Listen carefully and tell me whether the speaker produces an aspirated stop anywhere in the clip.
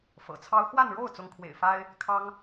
yes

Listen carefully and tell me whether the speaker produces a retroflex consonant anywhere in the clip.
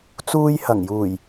no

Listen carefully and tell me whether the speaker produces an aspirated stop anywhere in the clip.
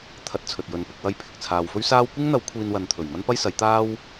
yes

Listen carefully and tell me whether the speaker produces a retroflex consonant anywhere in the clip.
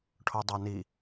yes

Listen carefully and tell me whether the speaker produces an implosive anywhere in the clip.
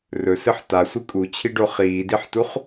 no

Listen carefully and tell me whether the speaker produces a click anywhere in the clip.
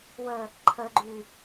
yes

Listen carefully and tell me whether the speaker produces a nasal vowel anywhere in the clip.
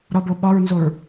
no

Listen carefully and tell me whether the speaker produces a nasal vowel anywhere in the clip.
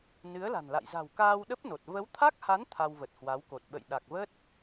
no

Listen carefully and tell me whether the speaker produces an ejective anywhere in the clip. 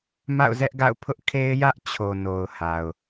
no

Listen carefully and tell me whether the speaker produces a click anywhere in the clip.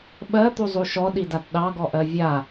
no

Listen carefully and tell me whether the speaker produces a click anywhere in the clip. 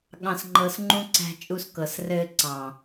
yes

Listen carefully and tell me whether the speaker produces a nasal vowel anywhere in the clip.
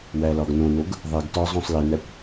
yes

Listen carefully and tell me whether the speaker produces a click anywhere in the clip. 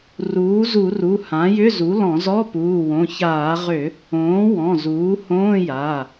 no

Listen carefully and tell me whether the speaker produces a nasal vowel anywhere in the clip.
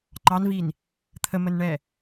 no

